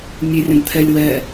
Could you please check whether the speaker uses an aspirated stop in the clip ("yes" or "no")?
yes